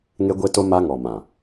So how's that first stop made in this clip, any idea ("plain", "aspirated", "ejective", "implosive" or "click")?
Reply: plain